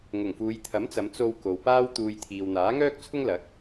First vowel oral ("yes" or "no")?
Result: yes